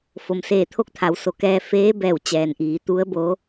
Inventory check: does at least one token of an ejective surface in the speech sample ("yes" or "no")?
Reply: no